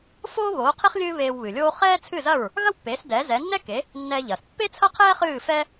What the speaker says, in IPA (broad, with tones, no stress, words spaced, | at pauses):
foː˥ βoː˩˥qʰe˥χ lʲɨː˥βeː˧wβɨ˩lʲoː˥ χɛː˥t͡sʰɨ˥˩zɐ˥˩ɹ | ɣɐ˥wpːeː˩˥sdɛː˩˥ zɛ˩˥nːɛ˥ ke˩˥ | nːɛː˧ʎɐː˩s pːe˥t͡sʰɐ˥qʰɛː˥ χɨː˥˩fɛ˥